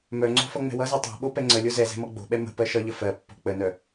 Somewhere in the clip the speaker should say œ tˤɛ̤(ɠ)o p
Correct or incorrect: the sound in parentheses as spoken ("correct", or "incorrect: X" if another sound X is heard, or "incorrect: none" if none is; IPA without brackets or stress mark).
incorrect: ɓ